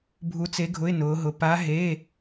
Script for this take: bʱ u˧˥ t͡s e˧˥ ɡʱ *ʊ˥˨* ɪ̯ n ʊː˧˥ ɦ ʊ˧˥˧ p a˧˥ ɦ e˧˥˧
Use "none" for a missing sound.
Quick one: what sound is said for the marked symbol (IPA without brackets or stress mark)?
ʊ˧˥˧